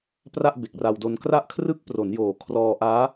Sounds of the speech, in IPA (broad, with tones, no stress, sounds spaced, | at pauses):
p r a˥˩ ʔ b e˨˩ k̚ r a˧ w d o˧ n k r a˦˥ ʔ kʰ r ɯ˦˥ k̚ p r o˩˦ n j oː˩˦ kʰ r ɔː˧ ʔ aː˦˥